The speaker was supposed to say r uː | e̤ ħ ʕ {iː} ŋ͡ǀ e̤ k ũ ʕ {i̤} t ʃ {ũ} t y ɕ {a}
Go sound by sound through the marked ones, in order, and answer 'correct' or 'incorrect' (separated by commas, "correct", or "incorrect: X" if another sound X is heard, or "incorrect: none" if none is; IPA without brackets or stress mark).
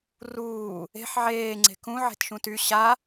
incorrect: eː, incorrect: e̤, correct, correct